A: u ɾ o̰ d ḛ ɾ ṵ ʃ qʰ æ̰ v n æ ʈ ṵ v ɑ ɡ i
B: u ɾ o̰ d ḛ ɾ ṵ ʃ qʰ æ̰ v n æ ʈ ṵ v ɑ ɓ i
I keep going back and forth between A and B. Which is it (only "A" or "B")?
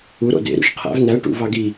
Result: A